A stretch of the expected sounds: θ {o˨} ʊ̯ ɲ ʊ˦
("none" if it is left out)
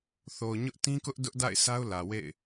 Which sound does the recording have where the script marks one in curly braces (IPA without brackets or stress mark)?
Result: o˨